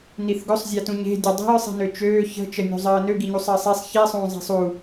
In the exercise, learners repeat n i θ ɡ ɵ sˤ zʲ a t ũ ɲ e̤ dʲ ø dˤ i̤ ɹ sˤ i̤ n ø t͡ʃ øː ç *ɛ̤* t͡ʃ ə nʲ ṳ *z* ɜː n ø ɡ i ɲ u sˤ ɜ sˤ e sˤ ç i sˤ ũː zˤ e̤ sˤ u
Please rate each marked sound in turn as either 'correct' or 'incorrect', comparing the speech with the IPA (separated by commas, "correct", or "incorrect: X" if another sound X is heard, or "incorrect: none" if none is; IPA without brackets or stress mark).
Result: incorrect: ə̤, incorrect: zˤ